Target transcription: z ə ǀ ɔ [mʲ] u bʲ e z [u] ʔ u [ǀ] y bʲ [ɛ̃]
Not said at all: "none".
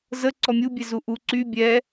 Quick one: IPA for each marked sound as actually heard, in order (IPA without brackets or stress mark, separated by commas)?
mʲ, u, ǀ, ɛ